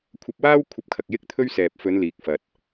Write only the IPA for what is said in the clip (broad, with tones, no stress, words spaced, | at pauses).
kʷʰɐ˧p̚waː˥wkʷʰɐ˧p̚kʰɐ˨k̚ jɪ˥k̚t̪ʰɵ˥ɥsɛː˨p̚ fɵ˨˧n liː˧k̚fɐ˧t̚